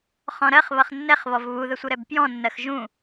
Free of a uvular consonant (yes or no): no